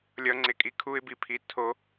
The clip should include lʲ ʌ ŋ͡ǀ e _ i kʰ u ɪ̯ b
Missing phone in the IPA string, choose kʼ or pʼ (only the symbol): kʼ